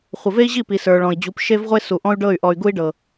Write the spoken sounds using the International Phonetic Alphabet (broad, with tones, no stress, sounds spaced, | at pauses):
χʷ ə˨ v e˦ i̯ ʑ i˦˨ p i˨ s ə˞˨ ɭ ɔ̃˨ i̯ d͡ʑ u˨˦ p ʃ e˦ v ʁʷ e˦ s u˨ ʔ ɔ̃˦ y̯ ɖ ɤ˦˨ y̯ ʔ ɔ˨ y̯ ɡ u˦ i̯ ɖ ɤ˨